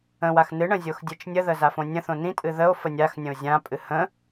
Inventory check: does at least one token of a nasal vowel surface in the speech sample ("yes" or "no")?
yes